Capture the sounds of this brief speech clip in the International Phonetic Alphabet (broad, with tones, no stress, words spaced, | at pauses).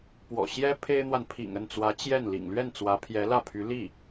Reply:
pwɔ̰˨˩ ɕjɛ˥ pʰe˥ɪ̯n̪wa˨n pʰḭ˨˩ŋə˥˩nt͡swä˧˥ t͡ɕjɛ˥˩n lḭ˨˩ŋlɥɛ˥˩nt͡swä˧˥ pʰjɛ˧˥lä˥˩pʰy˧˥ li˥˩